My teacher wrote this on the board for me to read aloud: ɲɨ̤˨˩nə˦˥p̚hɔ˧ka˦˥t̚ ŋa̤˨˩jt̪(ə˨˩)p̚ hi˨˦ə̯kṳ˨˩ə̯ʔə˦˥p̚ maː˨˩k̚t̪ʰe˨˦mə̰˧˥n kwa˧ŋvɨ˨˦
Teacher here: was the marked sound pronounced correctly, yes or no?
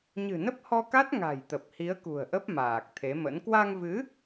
yes